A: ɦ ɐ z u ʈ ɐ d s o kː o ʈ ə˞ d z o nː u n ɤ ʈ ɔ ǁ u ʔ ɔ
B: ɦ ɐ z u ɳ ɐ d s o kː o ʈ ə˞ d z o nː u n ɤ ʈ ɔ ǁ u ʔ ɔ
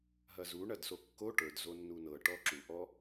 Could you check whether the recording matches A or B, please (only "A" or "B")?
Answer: B